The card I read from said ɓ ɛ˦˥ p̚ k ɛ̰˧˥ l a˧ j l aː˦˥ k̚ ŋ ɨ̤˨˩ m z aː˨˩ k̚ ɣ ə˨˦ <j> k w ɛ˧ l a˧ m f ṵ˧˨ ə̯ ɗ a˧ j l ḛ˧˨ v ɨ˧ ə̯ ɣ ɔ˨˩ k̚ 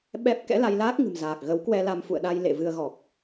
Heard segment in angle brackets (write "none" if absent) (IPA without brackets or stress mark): w